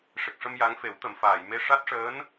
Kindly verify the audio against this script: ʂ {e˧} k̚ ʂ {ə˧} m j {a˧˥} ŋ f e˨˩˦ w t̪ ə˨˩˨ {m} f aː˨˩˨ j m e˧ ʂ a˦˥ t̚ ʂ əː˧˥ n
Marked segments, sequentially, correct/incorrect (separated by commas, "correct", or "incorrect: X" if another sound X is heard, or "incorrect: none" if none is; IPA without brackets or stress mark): incorrect: e˨˩, correct, correct, correct